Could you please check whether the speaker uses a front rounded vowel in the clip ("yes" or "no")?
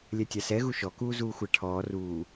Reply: no